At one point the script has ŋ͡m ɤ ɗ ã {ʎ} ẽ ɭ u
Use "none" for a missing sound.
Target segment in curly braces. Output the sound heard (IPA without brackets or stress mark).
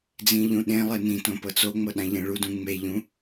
ʎ